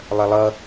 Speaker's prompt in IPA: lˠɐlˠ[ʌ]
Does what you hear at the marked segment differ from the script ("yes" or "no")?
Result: no